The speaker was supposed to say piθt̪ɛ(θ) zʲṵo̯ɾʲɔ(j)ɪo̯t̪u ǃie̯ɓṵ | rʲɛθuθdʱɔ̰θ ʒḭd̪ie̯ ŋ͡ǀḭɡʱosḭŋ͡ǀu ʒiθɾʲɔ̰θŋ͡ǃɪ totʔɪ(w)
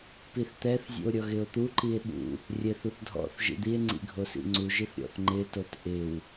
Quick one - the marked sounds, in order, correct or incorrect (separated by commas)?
correct, incorrect, correct